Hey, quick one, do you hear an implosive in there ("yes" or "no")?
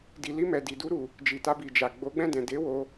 no